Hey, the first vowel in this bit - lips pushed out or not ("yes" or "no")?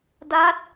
no